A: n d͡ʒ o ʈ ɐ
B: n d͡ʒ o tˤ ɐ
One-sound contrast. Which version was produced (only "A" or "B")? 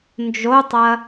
B